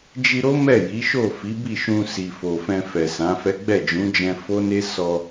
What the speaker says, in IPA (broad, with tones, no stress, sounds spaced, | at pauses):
d͡ʒ i˧ ɾ o˦ m ɛ˦˨ j i˨˦ ʃ o˦˨ f i˨˦ b i˦˨ ʃ ũ˧ s i˨ f o˨ f ɛ̃˧ f ɛ˨ s ã˨˦ f ɛ˦ ɡ͡b ɛ˦˨ d͡ʒ ũ˨˦ d͡ʒ ɛ̃˧ f o˦ n e˦ s ɔ˧